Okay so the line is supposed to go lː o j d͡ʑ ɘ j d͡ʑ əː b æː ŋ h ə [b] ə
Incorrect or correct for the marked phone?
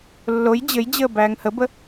correct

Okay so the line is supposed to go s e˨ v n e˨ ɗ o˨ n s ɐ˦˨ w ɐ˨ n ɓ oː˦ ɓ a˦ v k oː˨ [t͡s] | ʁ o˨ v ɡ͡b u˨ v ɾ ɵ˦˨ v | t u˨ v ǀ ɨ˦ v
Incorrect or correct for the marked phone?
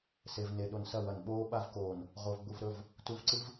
incorrect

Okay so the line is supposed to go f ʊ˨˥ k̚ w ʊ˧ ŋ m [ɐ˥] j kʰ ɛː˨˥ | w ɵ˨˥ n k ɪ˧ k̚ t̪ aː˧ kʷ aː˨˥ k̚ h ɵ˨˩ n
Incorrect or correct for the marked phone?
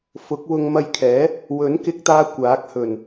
incorrect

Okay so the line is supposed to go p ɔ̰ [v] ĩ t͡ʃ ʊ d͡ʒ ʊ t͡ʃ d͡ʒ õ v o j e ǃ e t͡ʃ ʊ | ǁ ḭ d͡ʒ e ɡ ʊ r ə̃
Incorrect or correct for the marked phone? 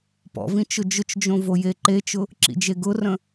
correct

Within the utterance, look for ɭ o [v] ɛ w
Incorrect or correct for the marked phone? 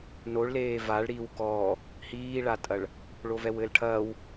correct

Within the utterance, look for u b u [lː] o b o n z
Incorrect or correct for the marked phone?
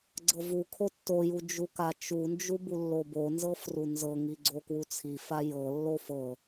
correct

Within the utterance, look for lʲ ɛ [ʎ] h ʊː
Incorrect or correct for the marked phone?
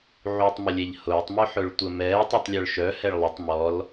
correct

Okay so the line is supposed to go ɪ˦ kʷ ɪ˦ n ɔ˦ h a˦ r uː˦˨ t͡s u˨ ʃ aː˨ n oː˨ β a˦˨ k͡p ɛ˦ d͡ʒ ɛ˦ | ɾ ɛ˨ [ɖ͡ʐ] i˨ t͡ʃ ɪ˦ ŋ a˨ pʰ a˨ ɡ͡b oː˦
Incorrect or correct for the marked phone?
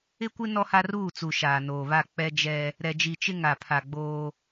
incorrect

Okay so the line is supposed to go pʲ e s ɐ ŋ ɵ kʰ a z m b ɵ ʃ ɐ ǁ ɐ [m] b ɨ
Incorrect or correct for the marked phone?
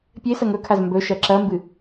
correct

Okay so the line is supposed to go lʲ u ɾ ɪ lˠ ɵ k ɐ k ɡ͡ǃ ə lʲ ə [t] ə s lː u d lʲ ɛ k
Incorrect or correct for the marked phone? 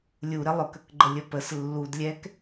incorrect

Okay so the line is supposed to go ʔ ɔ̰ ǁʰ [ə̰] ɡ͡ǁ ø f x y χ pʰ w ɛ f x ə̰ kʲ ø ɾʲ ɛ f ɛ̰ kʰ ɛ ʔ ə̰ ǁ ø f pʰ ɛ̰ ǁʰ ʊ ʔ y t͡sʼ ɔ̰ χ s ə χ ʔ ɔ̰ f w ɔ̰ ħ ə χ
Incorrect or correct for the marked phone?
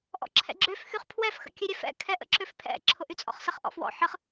incorrect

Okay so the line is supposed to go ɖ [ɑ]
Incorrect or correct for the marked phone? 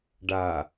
incorrect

